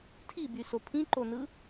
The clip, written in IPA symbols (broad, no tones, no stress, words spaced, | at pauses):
tʰibyso pʰĩǃonɯ